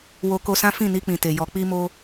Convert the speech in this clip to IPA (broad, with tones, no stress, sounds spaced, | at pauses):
w o˧ k o˧ s ã˦ f ĩ˦˨ n i˧ k͡p ĩ˨ t e˨ j ɔ˨ k͡p i˧ m o˧